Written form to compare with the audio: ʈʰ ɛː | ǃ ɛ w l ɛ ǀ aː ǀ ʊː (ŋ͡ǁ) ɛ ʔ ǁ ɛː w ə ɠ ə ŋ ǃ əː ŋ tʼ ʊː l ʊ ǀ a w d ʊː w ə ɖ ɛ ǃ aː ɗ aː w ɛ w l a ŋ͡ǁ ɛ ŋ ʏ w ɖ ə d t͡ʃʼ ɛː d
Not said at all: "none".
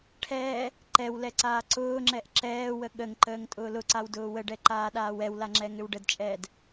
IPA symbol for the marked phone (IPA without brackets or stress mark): ŋ͡ǁ